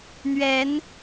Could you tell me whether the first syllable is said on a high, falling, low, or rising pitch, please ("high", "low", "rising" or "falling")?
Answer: rising